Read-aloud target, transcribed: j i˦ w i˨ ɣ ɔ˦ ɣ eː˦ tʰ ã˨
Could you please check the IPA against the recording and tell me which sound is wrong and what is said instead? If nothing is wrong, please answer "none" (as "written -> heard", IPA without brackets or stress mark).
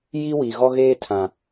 none